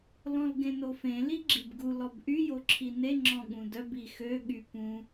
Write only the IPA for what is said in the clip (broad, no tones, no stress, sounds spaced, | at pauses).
l ɔ̃ l ɡ ẽ n o f ẽ l i ɡ͡ǁ i b ɡ u l ɔ b ʔ y j o ǁʰ i n e ŋ͡ǁ ɔ̃ ɠ ũ d œ b i x ø ɠ y p ũ